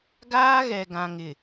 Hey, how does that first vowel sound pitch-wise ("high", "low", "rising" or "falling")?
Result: high